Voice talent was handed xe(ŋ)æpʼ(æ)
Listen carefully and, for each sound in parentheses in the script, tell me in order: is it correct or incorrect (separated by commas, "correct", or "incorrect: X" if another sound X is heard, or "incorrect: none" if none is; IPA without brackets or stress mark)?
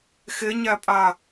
incorrect: ɲ, incorrect: a